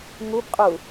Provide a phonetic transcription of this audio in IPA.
ŋ u b qʼ u

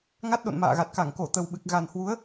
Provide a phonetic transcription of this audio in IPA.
ŋ a˦˥ t̚ ɗ o̰˧˨ n m a̰ː˧˨ ɣ a˨˩ t̚ k a˧˩ ŋ k o˧˩ t̪ ə˨˩ w ɓ ɨ˨˩ k̚ ɣ a˨˩ n h w u˨˦ ə̯

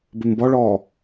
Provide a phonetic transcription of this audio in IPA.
b ʏ m b ɔ ɭ ɔː

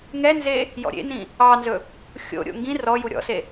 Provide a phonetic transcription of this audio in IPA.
ŋ ɛ n z e | j ɔ̰ ɾʲ ḛ n ĩ | ɑ n z ɵ | xʲ o̰ ɾʲ o̰ ŋ ɡ ĩ r ɔ j u ɾʲ ɔ̰ s e

